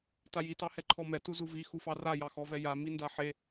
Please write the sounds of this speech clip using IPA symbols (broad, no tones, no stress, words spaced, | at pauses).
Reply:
taji tɑhɛǃʰɔmɛ tuzuvi xufɑra jɑxɔvɛja mindaħe